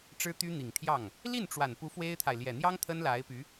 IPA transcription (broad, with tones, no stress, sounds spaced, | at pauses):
ʈ͡ʂ ɻ̩˥ t̪ y˥ n̪ i˨˩ ŋ t̪ʰ j ɑ˥˩ ŋ | l i˥˩ n ʈ͡ʂ w a˨˩ n p u˧˥ f w e˥ ɪ̯ t̪ʰ a˨ ɪ̯ l j ɛ˨˩ n̪ j ɑ˥ ŋ t̪ʰ ə˥ n l a˧˥ ɪ̯ p y˧˥